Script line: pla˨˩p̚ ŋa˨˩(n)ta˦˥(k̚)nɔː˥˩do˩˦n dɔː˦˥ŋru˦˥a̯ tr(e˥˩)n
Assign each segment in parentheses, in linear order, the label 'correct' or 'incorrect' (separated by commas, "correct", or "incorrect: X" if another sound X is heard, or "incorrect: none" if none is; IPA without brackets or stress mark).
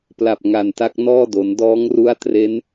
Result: correct, correct, incorrect: e˦˥